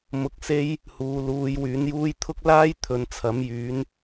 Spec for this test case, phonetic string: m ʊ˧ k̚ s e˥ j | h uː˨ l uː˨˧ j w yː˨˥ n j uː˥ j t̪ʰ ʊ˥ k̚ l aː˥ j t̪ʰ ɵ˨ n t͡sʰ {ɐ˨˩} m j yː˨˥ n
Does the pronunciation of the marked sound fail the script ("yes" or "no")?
yes